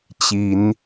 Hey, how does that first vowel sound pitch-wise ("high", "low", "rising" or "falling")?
rising